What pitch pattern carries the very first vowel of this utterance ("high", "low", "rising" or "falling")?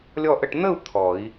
falling